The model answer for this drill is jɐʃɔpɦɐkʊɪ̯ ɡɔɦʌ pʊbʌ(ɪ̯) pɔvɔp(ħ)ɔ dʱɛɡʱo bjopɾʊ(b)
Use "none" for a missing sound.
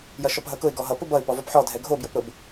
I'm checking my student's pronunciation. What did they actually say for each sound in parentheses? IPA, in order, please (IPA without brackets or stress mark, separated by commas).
ɪ̯, ħ, b